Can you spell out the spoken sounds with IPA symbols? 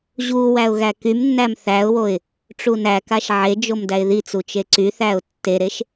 ʑ u w æ ʊ̯ ɣ æ k y m nː æ m θ æ ʊ̯ w o ɪ̯ | ʈ͡ʂ u n æ k a ʃ ʕ e d͡ʒ o m d æ ɪ̯ ð i t͡s u t͡ʃ e ǀ y θ æ ʊ̯ tː e ɾ e ʃ

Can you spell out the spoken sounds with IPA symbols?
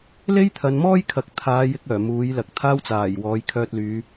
l e˥ j t̪ʰ ɐ˨˧ n m ɔː˥ j kʰ ɐ˨ k̚ t̪ʰ aː˨˧ j ɪ˨˥ k̚ œː˨˩ m uː˨˥ j l ɐ˨ k̚ t̪ʰ aː˥ w t͡s aː˨˩ j w ɔː˨˧ j kʰ œː˧ t̚ l yː˨˧

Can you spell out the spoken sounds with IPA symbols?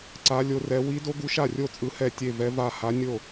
ǀ a˧˥ lʲ o˧˥ r ɛ˧˥ w i˧˥ d o˧˥ ɡ u˧˥ ʃ a˥˩ rʲ o˥˩ t͡sʼ ɯ˧˥ h ɛ˥˩ tʲ e˥˩ v ɛ˧˥ v a˥˩ h a˧˥ nʲ o˥˩

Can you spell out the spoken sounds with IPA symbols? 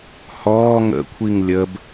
h ɔː ŋ ə̰ kʷʰ i ŋ lʲ ə b

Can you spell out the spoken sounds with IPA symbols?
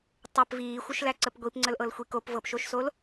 tˤ ʌ p v iː xʷ ɤ ʃ l æ ǀ ə p ɡʷ i p ŋ͡ǀ ə l ʔ ɤ l xʷ i k o p v ɤ p ʃ o ʃ s o l

